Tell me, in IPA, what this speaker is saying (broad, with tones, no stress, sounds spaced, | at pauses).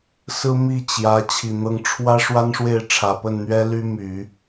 s ɹ̩˥ m i˥˩ t͡ɕ j ä˧˥ t͡ɕʰ i˨˩ n̪ ɤ˧˥ ŋ ʈ͡ʂʰ w ä˥ ʂ w a˥ n ʂ w e˥˩ ɪ̯ ʈ͡ʂʰ ä˨˩ p ə˥˩ n n̪ ɥ ɛ˥ l y˥ m y˨˩˦